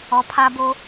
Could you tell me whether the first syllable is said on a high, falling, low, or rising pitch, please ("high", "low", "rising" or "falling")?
low